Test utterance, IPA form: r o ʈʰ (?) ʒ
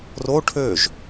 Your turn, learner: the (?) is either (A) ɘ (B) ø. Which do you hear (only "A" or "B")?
B